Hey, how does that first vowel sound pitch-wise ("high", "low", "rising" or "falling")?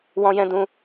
high